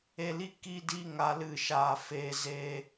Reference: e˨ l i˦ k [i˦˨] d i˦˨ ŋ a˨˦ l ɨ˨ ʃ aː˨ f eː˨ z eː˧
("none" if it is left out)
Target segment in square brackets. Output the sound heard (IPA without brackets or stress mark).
i˦˨